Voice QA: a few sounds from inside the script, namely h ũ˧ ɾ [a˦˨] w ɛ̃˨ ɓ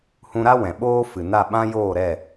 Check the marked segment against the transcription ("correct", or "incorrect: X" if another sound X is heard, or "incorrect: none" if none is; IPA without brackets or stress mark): incorrect: a˦